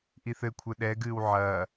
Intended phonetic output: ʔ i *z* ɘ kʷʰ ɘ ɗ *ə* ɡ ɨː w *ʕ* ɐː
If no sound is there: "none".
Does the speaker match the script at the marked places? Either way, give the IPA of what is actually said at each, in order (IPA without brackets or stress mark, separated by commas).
θ, ɛ, ʕ